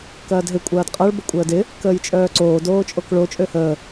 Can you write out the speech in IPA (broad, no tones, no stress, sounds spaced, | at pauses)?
k ɐː d ɦ ɪ kʷʼ ɐː d qʼ ɐ ɭ b ə kʷʼ əː d ɪ | k əː j t͡ʃʼ œː ǀ oː d oː t͡ʃʼ o k ɭ o t͡ʃʼ ø h əː